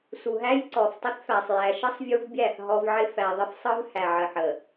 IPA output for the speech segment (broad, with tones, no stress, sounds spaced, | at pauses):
s u˨ ɦ æ˦ j ǀ ɔ˨ f tˤ ɪ˦ θ f æ˨ sˤ j æ˨ ʃ ə˦ sˤ vʲ u˦ v bʲ æ˦˨ θ ɦ ɔ˦ v ʕ ɪ˦ f æ˨ ðˤ ɪ˦ f sˤ ɯ˦ v h æ˨ ʕ ə˨ ħ ə˨